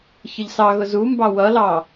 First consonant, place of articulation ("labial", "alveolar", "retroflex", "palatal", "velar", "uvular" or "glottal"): palatal